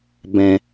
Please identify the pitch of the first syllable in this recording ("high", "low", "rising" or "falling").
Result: low